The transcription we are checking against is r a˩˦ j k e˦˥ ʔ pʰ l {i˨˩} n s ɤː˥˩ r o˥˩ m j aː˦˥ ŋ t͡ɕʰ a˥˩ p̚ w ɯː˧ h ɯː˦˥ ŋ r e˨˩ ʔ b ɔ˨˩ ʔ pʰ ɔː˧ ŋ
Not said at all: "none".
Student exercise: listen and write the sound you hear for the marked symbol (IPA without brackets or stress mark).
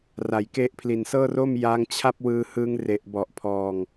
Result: i˨˩